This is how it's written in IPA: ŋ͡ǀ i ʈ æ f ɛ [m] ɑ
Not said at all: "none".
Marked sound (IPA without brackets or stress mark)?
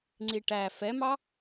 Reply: m